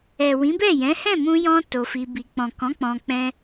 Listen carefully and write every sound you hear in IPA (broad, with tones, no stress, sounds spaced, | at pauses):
ɛ˨ w ĩ˨˦ b ɛ˦˨ j ɛ̃˨˦ h ɛ̃˦˨ m ũ˧ j ɔ̃˧ t o˧ f i˧ b i˧ k͡p ɔ̃˨ k ɔ̃˨˦ k͡p ɔ̃˧ k͡p ɛ̃˦